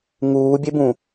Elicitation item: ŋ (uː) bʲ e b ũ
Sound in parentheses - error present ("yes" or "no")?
no